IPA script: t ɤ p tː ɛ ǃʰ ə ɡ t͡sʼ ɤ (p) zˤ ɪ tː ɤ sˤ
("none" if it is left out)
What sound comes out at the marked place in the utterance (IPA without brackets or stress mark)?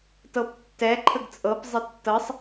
p